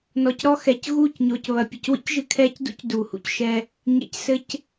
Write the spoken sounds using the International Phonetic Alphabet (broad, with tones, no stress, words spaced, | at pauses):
nɔ˨cɾɔ˦ xɛ˨c ɣuː˦˨cɲoː˨cβɐ˨ pʲɐ˨cwḭ˦cʒɨ˨kʰɛː˦c dṵ˦c duː˨hṵ˨cʃɛ˦ | ɲḛ˨csɘ˨c